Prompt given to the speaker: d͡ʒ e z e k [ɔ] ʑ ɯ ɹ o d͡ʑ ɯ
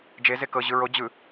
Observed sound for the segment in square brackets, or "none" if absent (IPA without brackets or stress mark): ɤ